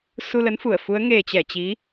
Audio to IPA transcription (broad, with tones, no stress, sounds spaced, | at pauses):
s u˧ l ə˨˦ n f u˧˩ ə̯ f u˨˦ ə̯ ŋ e˨˩ t͡ɕ ɛ˧˩ t͡ɕ i˨˦